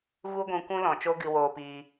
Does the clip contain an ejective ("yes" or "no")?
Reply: no